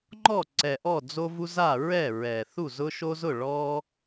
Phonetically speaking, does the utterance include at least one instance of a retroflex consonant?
yes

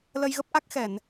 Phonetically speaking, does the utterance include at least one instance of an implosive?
no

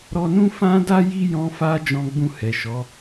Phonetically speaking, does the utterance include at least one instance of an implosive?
no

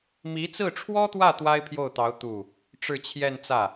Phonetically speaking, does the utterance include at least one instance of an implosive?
no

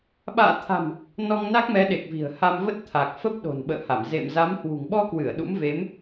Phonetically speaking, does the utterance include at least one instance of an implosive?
yes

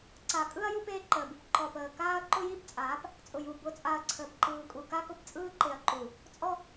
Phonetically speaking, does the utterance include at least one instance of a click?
yes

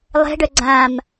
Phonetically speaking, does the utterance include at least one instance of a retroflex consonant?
yes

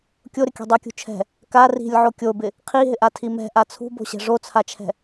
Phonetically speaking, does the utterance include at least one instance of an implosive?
no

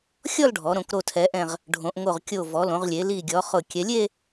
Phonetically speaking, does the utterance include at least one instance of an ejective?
no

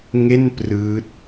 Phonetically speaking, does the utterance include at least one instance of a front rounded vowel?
no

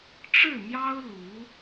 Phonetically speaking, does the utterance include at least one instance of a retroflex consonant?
yes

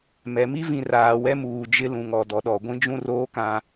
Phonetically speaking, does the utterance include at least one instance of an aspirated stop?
no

